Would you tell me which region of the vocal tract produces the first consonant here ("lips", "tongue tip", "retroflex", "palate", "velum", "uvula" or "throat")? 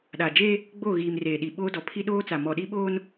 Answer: tongue tip